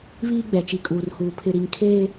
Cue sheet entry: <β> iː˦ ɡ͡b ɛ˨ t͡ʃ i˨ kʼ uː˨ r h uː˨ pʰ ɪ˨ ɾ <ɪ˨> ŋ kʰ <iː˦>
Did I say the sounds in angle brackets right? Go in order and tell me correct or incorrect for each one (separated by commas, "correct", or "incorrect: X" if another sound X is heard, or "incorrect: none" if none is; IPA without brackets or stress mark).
correct, incorrect: i˨, incorrect: eː˦